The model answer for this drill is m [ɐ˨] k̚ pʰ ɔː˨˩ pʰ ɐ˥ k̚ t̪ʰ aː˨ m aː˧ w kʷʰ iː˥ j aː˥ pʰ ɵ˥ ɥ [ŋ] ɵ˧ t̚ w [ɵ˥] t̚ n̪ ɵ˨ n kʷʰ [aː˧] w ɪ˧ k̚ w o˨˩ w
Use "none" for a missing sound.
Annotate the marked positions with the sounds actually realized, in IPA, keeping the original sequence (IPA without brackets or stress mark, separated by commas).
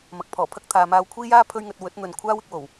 ɐ˨, ŋ, ɵ˨˥, aː˥